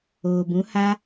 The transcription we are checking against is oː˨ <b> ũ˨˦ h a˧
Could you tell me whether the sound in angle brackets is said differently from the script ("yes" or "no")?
no